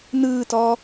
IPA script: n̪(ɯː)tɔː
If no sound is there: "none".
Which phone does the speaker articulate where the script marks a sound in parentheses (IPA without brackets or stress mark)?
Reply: ɯː